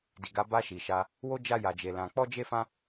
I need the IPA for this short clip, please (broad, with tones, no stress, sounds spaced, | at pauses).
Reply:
d i˨ ɡ a˨˦ b a˧ ʃ i˨ ʃ a˧ | w o˦ d͡ʒ a˧ j a˨ d͡ʒ e˨ l ã˨ k͡p ɔ˧ d͡ʒ e˧ f ã˧